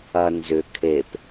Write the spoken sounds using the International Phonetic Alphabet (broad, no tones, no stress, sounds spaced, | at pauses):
ɐ n z ʏ kʰ e p